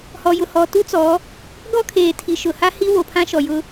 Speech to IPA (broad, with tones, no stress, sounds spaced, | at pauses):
h ɔ˨ j ʊ˨ h ɔ˨ t u˦ t͡s ɔ˨˦ | ɡ ɔ˦ kʰ eː˨ tʰ i˨ ʃ ʊ˨ h a˦ h i˦ w o˨ pʰ ã˦ ʃ ɔ˨ j ʊ˦